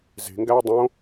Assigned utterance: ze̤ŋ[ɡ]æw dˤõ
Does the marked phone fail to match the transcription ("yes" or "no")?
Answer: no